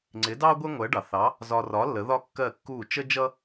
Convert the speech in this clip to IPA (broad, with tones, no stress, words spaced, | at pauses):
ŋ͡ǀɪ˩˥dɑ˥ ɡʷɛ˥ŋʷɜ˩˥ɖɑ˩θɑ˩˥ | zɒ˧ rɒ˩˥ lːə˩˥ðɒ˥kːɜ˥˩kːuː˥˩ t͡ʃə˥d͡ʒʌ˥